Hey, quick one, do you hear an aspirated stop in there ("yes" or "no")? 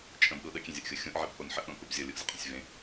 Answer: no